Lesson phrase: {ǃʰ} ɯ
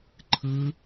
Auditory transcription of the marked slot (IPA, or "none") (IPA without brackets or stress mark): ǃʰ